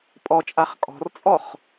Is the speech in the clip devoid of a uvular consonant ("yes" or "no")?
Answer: no